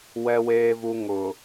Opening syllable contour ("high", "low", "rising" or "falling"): low